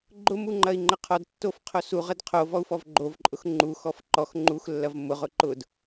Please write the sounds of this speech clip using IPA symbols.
ɡ͡ǃ ʊ m u ŋ͡ǃ ɐ i̯ ŋ͡ǃ ə qʰ ɔ d tː o f qʰ o s u ʁ ə d qʰ o v ɔ u̯ f ɔ v ɡ͡ǃ o v ǃʼ ʊ x ŋ͡ǃ u x ɔ f ǃ ɔ x ŋ͡ǃ u x lː ɐ v m ʊ ʁ ʊ ǃ ʊ d

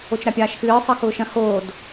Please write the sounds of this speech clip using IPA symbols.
o t͡ʃ ɾ a pʲ aː ʃ x ɨː sˤ ʌ x ʊː ʃ ɐ̃ h oː d

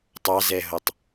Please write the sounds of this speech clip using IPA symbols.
tˤ ɑ z ɛ ɦ o tˤ

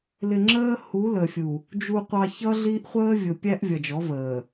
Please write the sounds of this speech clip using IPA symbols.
l ɪ˨ ŋ͡ǁ əː˦ h u˨˦ l ə˨ fʲ u˨ | d͡ʒ u˨ qʷ ɑ˨ ç ʌ˦ ɮ i˦ ʔ χʷ əː˦ vʲ ʊ˨ pʲ æ˦ ʔ vʲ ʌ˨ d͡ʒ ɔ˨˦ v əː˨

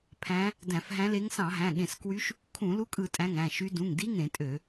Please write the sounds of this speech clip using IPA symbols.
pʰ æ̃˧˥ | d æ̃˧˩˧ f ɦ æ̃˧˥ l e˧˥ ŋ s ɑ̃˧˩˧ ɦ æ̃˩˧˩ ɠ ẽ˧˩˧ s k w y˧˥ ʃ | kʰ ũ˧˩˧ l u˧˥ kʼ ɯ˧˩˧ tʼ æ̃˩˧˩ ŋ æ̃˩˧˩ ʃ y˧˥ d ũ˩˧˩ ŋ d i˧˥ ŋ ẽ˧˩˧ tʼ ø˧˩˧

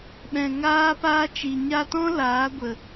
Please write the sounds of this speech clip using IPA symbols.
ɓ ɛ̃˨ ŋ aː˦ p aː˦ t͡ʃ i˨ ɲ a˧ t ɔ̃˦ l aː˨˦ ɡʷ ə˨

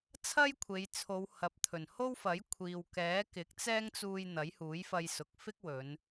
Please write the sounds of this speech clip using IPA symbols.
t͡sʰ ɐ˥ j kʷʰ e˨˧ j t͡sʰ o˨˧ w h ɐ˨ p̚ t̪ʰ ɵ˨˩ n h o˥ w f ɐ˨˥ j kʷʰ iː˨ w k ɛː˨˥ k ɪ˨˥ k̚ t͡s ɛː˥ ŋ t͡s uː˧ j n̪ ɐ˨˥ j h uː˨˥ j f ɐ˧ j s ʊ˨ k̚ f ɪ˥ k̚ w ɵ˨˧ n

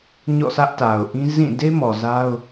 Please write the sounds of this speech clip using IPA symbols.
ɲ ɔ̰˦˨ s ä˦ ʔ t a˨ ʊ̯ ʔ ĩ˦ z ĩ˦˨ d e˦ m ɔ˨ z a˦ ʊ̯

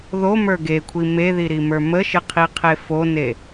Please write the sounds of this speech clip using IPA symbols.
ð o m ə˞ ɡ e kʷʰ i m e ð i ɾ i m ə˞ m ə ʃ ɪ qʰ i qʰ e f o n e

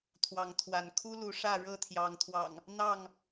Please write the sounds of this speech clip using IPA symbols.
t̪ʰ w ɑ˨˦ ŋ t̪ʰ w a˨˦ n kʰ u˦ l u˨˦ ʂ ä˥˨ ɻ ɤ˥˨ t̪ʰ j ɑ˨˦ ŋ t̪ʰ w ɑ̰˨˩ ŋ | n̪ ɑ˥˨ ŋ

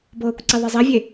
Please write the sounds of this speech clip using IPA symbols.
b ɤː kʷ ǀ e ðˤ e zˤ e vʲ e

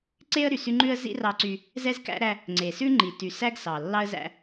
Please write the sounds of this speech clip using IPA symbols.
ǀ e˦ ə̯ ɾ y˨ s y˦ ŋ͡ǃ ʉ˦ ə̯ z ḭ˦ r ɑ˦ ǀ y˦ | z ɛ˦ z k æ̰˦ ɾ æ˦ | ŋ͡ǀ e˨ s ʉ˦ ŋ͡ǃ i˨ t y˨ s æ˦ ɡ s ɑ˨ lː ɑ˦ ə̯ z æ̰˦

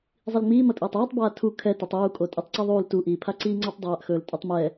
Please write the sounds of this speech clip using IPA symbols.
zˤ i l ŋ͡m iː m ʌ tʼ iː tˤ iː tˤ b aː tʰ u kʰ ɛ t ɵ tˤ uː kʼ o tʼ i tˤ ǀ i ðˤ uː l t u ʔ iː pʰ a ǀ iː ŋ͡ǀ a tˤ dˤ aː ʔ x ɵː l tʼ ɵ tˤ m ɛ

